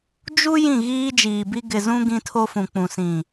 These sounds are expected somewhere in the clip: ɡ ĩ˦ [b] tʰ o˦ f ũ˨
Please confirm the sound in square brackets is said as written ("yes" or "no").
no